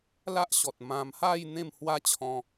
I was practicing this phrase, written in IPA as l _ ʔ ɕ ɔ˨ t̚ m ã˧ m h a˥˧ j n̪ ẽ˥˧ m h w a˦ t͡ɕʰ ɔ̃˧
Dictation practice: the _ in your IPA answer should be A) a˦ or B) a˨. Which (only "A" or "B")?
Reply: A